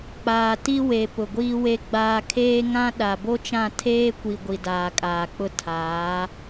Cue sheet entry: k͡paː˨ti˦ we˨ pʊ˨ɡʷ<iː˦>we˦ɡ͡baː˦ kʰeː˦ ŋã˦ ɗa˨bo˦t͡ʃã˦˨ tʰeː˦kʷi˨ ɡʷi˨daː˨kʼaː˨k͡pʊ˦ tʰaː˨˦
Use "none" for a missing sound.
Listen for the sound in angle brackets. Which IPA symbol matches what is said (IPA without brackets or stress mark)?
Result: iː˦